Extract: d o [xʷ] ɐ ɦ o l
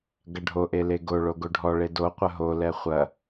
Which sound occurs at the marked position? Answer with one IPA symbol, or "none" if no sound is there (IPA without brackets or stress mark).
qʷ